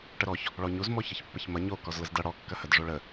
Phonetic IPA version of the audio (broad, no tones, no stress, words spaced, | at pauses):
ʈəɾɔç | ɭɔɲuz mɔçɐçpːəçmɐ ɲo kɔzləzdɐ ɽɔ kːɐhəd ʐoɭə